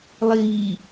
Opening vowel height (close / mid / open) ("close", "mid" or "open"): close